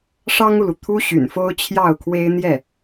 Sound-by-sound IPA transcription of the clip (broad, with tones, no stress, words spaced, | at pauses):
ʂɑ˥ŋu˨lu˩ t̪ʰu˥ɕy̰˨˩nfo˥ʊ̯ t͡ɕʰjɑ˥˩ʊ̯kʰwe˥ɪ̯ n̪jɛ˥˩